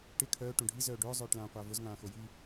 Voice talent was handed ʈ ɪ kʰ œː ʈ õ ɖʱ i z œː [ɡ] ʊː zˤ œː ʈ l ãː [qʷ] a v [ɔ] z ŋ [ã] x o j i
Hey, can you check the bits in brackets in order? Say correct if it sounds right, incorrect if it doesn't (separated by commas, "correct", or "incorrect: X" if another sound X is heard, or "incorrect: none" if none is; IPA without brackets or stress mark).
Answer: incorrect: ɖ, correct, incorrect: ʊ, incorrect: ãː